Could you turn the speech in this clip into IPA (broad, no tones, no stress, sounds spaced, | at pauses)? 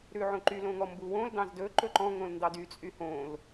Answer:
ɾ ʉ ʕ õ ǃ y l õ ŋ ɔ m b u w õ l d ɑ̃ z d ɵ ǃ ɵ ǃ ɔ̃ ŋ õ l n d ɑ d y t͡sʼ y h õ l